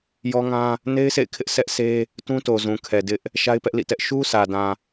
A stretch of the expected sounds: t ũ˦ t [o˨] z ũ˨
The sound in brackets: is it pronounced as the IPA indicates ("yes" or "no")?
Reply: yes